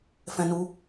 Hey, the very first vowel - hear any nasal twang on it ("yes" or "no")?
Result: yes